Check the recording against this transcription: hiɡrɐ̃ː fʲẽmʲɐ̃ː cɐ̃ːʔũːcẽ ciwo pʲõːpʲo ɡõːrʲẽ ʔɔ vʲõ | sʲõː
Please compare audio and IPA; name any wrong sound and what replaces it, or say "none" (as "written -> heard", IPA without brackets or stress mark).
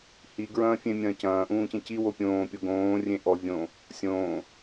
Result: r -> ɹ